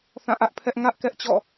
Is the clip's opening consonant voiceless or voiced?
voiceless